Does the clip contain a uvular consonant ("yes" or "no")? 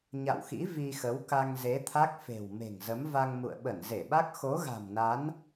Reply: no